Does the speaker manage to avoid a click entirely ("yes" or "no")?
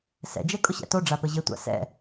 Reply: yes